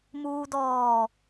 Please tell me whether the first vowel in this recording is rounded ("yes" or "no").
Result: yes